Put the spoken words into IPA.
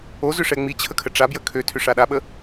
o z ʏ ʂ ɛ ŋ͡m i t͡ɕʰ ə kʰ ə ʈ͡ʂ a b j ə kʰ ø tʰ ʏ ʂ a ɗ a ɓ ə

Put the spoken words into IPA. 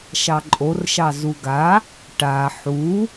ʃ ɑ ǃʼ o r ʃ ɑ z u ɡ a | ʈ a ħ u

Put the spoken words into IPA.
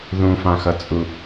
ð ũ f ã x ʌ t͡sʼ u

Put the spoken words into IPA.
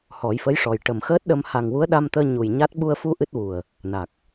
h ɔ˨˩˦ j f ə˧˥ j ʂ ɔ˨˩ j ʈ ə˨˩ m x əː˦˥ t̚ ɗ ə˧ m h a˨˩ ŋ w u˧˥ ə̯ ɗ a˧ m t̪ əː˧ ɲ u˨˩ j ɲ a˦˥ t̚ ɓ u˧ ə̯ f u˧ ʔ ɨ˦˥ t̚ w u˨˩ ə̯ | n a˨˩ k̚

